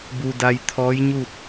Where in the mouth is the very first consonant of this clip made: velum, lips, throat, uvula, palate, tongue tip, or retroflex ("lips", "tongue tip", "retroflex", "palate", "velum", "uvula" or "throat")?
lips